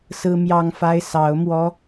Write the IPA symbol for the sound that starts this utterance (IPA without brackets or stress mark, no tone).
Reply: s